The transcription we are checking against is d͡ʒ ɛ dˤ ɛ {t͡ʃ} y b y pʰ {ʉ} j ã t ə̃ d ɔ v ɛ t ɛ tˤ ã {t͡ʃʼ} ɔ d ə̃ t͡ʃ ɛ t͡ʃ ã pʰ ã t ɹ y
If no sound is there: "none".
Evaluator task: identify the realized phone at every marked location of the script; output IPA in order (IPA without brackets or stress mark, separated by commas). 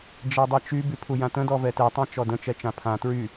t͡ʃ, u, t͡ʃ